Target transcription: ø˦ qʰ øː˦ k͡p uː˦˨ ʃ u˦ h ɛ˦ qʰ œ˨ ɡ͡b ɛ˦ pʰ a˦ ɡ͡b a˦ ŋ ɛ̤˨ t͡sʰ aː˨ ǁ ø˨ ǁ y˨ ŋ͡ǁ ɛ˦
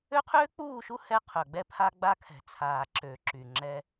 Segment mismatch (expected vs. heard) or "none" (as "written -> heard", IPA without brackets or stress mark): ŋ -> kʰ